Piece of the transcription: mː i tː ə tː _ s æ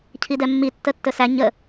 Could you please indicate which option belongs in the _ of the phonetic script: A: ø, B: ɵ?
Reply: B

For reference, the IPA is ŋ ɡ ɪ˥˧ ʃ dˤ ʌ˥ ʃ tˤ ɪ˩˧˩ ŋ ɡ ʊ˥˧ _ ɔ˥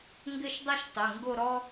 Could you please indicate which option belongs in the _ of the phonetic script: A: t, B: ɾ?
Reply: B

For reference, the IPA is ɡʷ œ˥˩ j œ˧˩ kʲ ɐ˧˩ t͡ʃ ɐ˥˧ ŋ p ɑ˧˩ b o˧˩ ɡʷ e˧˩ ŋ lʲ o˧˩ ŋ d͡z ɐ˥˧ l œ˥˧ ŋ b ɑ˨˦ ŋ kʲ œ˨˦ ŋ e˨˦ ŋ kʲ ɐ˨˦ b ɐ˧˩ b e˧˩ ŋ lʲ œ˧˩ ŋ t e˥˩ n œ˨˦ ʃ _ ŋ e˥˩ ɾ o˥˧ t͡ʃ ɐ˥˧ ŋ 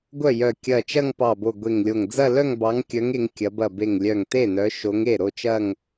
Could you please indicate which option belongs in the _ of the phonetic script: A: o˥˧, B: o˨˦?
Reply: B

